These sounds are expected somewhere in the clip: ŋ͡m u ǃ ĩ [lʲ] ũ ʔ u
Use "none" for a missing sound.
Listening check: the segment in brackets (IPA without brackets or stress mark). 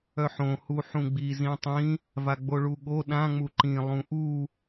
lˠ